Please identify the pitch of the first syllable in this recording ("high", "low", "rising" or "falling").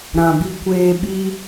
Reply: low